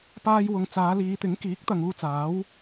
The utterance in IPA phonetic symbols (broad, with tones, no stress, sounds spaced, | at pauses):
p aː˥ j w ʊ˧ ŋ t͡s aː˨˧ l iː˨˧ t̪ ɪ˨˥ ŋ k iː˨˥ k̚ t̪ ɐ˨ ŋ uː˧ t͡s aː˨˥ w